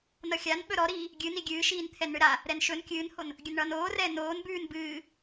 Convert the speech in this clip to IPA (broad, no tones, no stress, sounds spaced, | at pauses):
n ʌ xʲ a n ɓ ɵ ɾ ɔ ɾ iː | ɡʲ ɨ n i ɡʲ ɨː ʃ iː n t̪ʰ ɛ n ɳ ɨ ɾ a | ɾ ɛ n ʃ ɵ n kʲ ɨː n h o n | ɡʲ ɵ n ɳ ʌː n oː r ɛː n oː n b ʉː n b ɨː